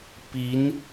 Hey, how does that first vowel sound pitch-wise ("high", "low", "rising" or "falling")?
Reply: rising